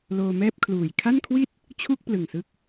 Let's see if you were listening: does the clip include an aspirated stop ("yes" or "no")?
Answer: yes